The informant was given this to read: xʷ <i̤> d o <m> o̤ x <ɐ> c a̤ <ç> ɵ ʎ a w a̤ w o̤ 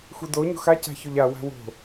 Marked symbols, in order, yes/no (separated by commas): no, no, no, yes